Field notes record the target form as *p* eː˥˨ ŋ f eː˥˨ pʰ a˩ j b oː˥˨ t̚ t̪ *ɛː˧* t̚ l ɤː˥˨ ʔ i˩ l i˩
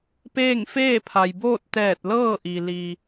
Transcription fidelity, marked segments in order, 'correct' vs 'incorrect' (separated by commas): correct, incorrect